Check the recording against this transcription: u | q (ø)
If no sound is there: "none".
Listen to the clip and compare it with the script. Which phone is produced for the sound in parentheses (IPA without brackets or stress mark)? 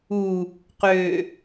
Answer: ø